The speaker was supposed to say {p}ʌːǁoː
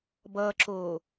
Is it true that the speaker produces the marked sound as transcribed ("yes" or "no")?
no